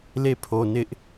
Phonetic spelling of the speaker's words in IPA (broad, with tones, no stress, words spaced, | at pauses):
le˦˨pʰo˨ nɪ˦ʔ